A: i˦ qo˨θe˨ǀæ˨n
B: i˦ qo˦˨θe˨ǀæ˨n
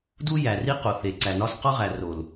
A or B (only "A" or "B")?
A